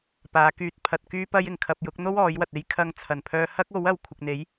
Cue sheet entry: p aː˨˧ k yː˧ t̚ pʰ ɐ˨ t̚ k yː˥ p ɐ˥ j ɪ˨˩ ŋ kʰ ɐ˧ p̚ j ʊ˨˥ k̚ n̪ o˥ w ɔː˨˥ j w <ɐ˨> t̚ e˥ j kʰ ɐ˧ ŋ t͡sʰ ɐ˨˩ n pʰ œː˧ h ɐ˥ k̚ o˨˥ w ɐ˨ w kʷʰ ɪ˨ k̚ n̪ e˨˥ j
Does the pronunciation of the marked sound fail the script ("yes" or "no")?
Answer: no